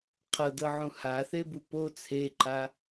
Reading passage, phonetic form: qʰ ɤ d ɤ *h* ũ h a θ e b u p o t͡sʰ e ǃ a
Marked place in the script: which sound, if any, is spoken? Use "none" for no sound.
ʕ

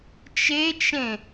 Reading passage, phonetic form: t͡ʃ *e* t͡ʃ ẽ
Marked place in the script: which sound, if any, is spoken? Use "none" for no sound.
e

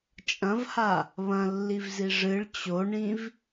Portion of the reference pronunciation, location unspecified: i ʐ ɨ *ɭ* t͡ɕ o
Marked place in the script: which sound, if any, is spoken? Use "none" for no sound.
ɭ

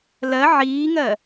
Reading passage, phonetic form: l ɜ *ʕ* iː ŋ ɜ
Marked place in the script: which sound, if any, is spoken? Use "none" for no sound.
ʕ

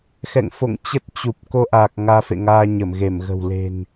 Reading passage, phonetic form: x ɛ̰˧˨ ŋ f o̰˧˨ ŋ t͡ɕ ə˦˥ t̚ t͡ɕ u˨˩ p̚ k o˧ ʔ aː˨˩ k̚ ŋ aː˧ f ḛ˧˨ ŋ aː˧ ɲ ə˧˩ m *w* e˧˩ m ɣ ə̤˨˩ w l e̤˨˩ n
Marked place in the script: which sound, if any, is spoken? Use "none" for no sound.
ɣ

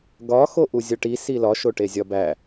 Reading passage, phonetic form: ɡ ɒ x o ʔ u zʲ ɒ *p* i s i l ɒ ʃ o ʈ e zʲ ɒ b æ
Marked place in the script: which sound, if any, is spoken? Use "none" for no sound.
ʈ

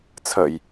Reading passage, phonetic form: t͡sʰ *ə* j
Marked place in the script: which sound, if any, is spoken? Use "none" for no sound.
ə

